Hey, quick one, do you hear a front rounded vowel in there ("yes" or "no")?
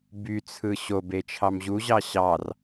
yes